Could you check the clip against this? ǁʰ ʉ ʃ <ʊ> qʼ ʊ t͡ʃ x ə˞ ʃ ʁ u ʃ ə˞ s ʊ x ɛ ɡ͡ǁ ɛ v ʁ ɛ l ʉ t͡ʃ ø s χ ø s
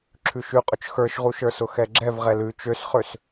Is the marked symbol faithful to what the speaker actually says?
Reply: no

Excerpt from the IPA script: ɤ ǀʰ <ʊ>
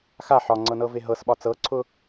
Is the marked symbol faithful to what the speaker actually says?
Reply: yes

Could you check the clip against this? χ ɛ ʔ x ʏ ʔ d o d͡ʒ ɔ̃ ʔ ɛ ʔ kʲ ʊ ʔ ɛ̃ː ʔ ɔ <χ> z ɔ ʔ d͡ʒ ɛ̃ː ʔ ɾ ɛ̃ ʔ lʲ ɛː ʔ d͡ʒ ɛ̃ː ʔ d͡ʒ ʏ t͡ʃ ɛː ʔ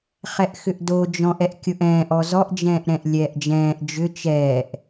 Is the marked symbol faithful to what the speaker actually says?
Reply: no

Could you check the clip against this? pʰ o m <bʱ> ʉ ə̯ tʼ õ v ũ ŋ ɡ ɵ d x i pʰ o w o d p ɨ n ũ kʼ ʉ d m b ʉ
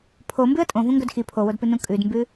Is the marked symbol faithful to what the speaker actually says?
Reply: no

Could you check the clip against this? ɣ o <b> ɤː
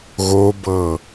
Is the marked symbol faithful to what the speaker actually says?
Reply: yes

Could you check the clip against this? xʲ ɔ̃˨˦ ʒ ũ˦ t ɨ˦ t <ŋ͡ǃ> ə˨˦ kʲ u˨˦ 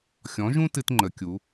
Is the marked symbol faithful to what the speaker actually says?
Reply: yes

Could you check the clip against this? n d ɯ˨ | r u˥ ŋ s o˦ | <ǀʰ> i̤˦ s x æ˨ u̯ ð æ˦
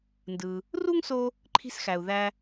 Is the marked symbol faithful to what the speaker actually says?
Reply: no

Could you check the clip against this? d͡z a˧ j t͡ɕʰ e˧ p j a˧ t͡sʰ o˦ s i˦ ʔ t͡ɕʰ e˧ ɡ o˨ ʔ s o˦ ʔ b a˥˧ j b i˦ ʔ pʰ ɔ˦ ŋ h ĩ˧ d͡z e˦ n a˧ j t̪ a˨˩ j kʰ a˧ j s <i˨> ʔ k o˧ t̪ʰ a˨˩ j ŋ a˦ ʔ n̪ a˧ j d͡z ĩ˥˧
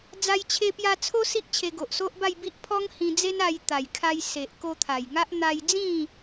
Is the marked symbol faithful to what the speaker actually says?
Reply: no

